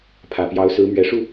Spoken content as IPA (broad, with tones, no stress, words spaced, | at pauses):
pʰä˨˩pjɑ˧˥ʊ̯sɹ̩˧˥ mɥɛ˨˩ʂu˥˩